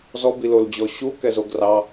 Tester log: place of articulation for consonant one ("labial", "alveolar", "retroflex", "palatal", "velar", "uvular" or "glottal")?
alveolar